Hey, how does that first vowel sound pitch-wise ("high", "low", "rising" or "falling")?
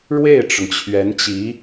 falling